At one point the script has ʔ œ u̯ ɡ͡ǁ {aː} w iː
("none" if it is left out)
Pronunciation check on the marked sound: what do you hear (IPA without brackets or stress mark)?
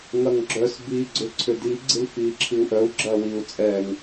ɐː